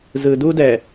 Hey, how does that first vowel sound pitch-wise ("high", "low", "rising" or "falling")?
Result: low